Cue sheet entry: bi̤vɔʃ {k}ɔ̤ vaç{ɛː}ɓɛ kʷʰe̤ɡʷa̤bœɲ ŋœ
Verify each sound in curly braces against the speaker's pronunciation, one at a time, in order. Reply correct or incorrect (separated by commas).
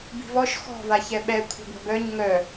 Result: incorrect, incorrect